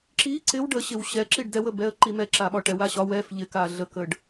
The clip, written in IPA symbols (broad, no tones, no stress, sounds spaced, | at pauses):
ǁ i ǀ ɪ w ɖ ə ɕ ɪ w ɕ ɛ ǁ i ɖ d ɛ w ə b ɛ ə̯ ǃ i m ɛ ǁ a ɓ ɒ ʈ ɛ w a ɕ ɒ w ɛ f ʎ ɪ k a ɮ ə k ə ɖ